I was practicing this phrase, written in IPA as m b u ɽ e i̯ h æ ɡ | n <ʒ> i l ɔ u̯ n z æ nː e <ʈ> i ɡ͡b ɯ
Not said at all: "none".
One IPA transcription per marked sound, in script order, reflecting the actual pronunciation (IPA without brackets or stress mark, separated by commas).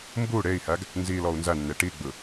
z, ʈ